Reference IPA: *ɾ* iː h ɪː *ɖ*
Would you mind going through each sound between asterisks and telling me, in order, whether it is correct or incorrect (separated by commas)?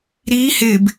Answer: correct, incorrect